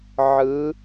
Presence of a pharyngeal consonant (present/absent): present